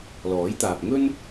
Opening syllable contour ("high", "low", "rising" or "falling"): rising